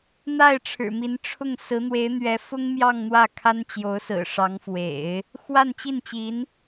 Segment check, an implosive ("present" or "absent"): absent